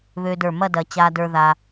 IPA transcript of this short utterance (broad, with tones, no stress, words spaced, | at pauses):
βø˧də˞˧˩ mɐ˥˧ dɐ˧ t͡ɕa˧də˞˧ ða˧